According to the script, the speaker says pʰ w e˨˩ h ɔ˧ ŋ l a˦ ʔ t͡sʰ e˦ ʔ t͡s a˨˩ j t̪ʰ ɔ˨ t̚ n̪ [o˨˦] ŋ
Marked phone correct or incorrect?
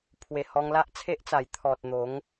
correct